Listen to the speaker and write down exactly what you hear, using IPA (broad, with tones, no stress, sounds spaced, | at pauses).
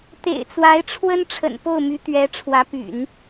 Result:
t̪ ḛ˨˩ ɪ̯ t͡s w a˧˥ ɪ̯ ʈ͡ʂʰ w ə˥ n ʈ͡ʂʰ ə̰˨˩ n p o˥˩ ʊ̯ m y˧˥ t̪ ɥ ɛ˧˥ ʈ͡ʂʰ w ä˧˥ p y̰˨˩˦ n